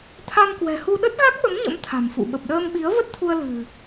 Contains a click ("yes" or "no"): no